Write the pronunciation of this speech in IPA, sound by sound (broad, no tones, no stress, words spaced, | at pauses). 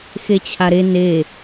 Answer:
xet͡ɕʰaɾe ne